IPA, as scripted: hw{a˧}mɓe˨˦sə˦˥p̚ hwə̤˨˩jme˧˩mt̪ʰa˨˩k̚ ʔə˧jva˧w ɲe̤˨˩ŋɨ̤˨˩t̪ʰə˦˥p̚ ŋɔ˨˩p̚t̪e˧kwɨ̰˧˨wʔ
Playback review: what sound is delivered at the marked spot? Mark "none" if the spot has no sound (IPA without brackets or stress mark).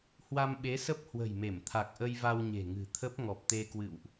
a˧